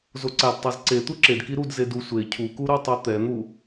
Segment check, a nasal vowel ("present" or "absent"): absent